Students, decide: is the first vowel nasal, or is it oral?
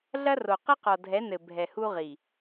oral